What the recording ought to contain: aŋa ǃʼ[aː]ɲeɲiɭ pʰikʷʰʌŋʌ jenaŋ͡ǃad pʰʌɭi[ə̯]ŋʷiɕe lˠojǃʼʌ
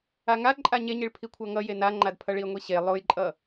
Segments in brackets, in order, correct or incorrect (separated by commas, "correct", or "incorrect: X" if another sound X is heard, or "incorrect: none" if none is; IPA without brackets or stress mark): incorrect: a, correct